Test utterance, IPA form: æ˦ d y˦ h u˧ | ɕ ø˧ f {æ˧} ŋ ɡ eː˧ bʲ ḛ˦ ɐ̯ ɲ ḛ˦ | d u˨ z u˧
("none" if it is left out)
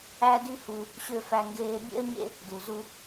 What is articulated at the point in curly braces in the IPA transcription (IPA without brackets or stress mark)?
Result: æ˧